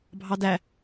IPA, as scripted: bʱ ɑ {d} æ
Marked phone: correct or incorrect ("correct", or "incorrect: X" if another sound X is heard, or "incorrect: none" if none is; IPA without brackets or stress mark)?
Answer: correct